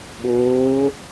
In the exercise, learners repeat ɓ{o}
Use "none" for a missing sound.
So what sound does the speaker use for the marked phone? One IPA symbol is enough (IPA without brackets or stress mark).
oː